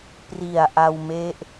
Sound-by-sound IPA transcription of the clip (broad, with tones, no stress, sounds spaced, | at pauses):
p r i˨˩ a̯ ʔ a˧ w m e˦˥ ʔ